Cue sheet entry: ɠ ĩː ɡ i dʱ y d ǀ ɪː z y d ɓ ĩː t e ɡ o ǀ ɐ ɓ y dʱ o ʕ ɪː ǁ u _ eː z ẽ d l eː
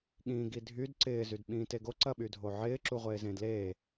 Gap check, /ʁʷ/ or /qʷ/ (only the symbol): ʁʷ